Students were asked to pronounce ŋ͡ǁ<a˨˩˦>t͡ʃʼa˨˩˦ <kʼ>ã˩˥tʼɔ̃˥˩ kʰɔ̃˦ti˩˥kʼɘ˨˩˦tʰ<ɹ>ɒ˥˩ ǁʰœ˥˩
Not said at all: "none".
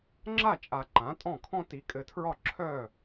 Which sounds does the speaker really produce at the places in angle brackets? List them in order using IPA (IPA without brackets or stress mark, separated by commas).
a˥˩, ǃ, ɹ